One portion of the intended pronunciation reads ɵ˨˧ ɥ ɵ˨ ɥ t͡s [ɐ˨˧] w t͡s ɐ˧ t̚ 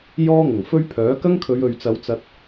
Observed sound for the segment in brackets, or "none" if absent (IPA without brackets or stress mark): ɐ˨˧